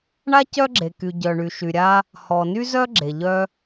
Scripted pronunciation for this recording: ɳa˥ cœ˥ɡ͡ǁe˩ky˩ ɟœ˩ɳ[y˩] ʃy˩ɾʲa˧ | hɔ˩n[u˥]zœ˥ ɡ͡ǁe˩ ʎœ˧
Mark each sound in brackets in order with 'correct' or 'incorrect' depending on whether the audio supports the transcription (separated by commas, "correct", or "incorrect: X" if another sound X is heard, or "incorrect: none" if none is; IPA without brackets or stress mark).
correct, incorrect: y˥